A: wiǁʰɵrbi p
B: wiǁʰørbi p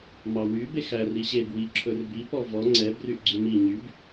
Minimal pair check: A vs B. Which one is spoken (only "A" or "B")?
A